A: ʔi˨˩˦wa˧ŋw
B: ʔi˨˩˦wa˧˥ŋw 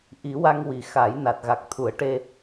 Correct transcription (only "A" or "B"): A